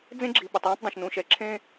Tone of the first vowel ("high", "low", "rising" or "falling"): high